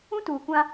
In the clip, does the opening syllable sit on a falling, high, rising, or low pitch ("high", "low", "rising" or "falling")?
high